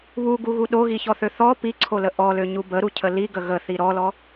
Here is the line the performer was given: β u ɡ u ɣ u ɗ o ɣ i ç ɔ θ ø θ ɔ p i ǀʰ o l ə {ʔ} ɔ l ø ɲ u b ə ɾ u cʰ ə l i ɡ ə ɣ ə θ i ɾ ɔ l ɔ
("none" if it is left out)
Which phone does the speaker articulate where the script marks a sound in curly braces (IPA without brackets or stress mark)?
ʔ